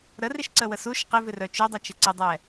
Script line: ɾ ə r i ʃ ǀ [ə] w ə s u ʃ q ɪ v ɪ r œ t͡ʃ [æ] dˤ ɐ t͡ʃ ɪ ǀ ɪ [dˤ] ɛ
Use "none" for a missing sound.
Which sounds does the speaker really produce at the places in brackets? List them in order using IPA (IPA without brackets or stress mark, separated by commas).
ə, œ, dˤ